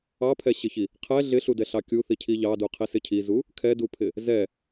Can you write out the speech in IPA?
ɑpʰɛɕɪçi | qʰɛ ɮɪɬudɛɬɑ kʲuθicʰi ʎɑduqʰisɪ cʰizu | kʰɛdupʰɪ | zɛ

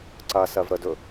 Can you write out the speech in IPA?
ǀɐsɜvɾədɵ

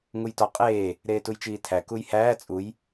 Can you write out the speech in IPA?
ŋujtɒ qʼeː | ɾeːtujt͡ʃiːtʰæ kujhæː t͡sʼuj

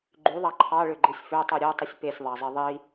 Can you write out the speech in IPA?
ɡ͡ǃyðˤɑ ǃʰɑɭøɡ͡ǃɯsʲ føtˤu ɾʲotˤɯsʲ pesʲðˤɑzˤe ðˤi

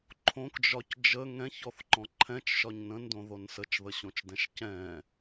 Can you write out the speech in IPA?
ǃʰõkd͡ʒɒc d͡ʒə ŋɛ̃çɔθǃɔ̃ ǃʰɛ̃t͡ʃʃɒɲ nə̃ndõðon sət͡ʃðəɕõt͡ʃdɛ̃ʃ cɛ̃

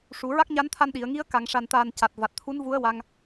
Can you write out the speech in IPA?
ʂu˨˩˨ɹa˦˥k̚ɲa˧˥nt̪ʰa˧n ɗi˨˩˨ə̯ŋi˧˥ə̯ ka˨˩˨ŋʂa˨˩nt̪aː˨˩n ca˨˩t̚va˨˩t̚t̪ʰu˧˥n vu˧˥ə̯wa˧ŋ

